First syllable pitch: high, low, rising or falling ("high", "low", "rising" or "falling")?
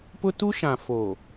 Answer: high